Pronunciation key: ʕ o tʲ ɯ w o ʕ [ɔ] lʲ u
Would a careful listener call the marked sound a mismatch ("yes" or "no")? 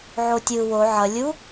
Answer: yes